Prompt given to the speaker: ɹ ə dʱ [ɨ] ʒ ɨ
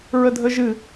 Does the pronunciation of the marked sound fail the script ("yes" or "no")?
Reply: yes